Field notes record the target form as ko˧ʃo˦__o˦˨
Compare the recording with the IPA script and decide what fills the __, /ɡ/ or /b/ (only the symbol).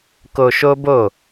b